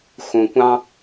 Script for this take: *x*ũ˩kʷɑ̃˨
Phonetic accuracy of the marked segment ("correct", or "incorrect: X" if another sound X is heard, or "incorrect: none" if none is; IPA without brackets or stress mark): correct